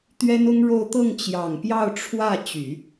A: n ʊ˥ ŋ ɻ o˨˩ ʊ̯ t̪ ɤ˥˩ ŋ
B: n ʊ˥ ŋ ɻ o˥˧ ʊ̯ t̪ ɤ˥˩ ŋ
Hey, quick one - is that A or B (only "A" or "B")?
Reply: B